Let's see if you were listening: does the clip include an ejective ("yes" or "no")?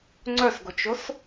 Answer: no